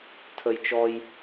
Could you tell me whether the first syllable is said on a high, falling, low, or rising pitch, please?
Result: high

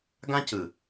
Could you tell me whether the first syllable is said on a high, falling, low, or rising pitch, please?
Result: high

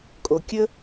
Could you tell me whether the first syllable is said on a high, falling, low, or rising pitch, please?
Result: low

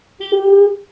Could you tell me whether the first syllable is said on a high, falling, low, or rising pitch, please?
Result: high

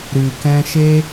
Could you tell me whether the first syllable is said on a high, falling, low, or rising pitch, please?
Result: low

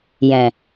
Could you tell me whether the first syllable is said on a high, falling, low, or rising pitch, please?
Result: low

